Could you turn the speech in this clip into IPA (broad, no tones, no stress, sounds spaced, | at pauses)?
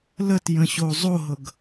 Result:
l ə t j ə̃ ɕ o zˤ o ɦ ɤ ɡ